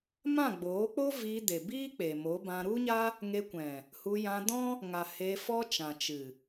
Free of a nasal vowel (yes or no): no